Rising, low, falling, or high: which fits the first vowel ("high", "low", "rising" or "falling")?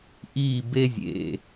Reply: falling